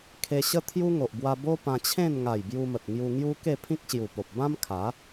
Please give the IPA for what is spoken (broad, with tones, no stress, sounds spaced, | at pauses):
kʰ e˧ ɕ ə˦ t̪ʰ j u˦ ŋ o˨ ʔ b w a˧ b o˦ p ã˧ t͡ɕʰ ẽ˥˧ n ŋ a˨˩ j b j u˧ m ə˨ t̚ ŋ j u˧ ŋ j u˦ k e˥˧ pʰ ĩ˦ k̚ ɕ j u˨˩ p o˨ p̚ b ã˦ m kʰ a˨˦